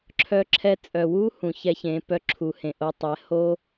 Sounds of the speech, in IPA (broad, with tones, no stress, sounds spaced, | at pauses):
ǁʰ œ˧ ǁʰ ɛ˧ t͡sʼ œ˨ w u˦ h ũ˨ ç ɛ˧ ç ẽ˨˦ p œ˧ ǁʰ u˨ h ẽ˨ ʔ o˧ tˤ ɛ˨˦ h o˦